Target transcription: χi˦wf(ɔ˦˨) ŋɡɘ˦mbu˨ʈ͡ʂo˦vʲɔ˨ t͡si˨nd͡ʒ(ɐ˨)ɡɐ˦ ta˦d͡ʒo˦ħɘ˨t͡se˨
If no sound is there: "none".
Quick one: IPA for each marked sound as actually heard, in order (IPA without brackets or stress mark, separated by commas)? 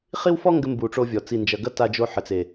ɔ˦, ɐ˨